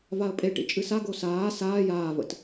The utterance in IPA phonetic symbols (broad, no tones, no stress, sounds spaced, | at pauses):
v a ə̯ pʼ e ʈ ḭ t͡ʃʼ ɨ s a ɡ o s aː s aː j aː v ə̰ t